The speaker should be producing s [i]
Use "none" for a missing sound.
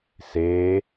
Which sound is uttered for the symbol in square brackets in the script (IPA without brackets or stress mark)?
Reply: e